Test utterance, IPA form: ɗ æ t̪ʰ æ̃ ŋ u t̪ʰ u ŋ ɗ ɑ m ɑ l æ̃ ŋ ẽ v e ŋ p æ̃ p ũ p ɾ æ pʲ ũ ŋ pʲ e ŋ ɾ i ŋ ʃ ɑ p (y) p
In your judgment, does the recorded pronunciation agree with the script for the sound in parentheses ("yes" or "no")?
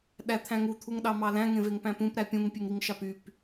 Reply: yes